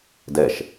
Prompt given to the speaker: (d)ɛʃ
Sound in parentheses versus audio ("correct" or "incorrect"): correct